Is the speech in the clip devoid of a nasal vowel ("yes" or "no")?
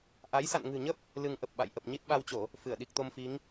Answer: yes